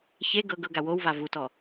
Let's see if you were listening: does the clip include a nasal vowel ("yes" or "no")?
no